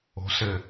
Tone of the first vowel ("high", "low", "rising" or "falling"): rising